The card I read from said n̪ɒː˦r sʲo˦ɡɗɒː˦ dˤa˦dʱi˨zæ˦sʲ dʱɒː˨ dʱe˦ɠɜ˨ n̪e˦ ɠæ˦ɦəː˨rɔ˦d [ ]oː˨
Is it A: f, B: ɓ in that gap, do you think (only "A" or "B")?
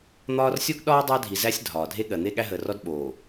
B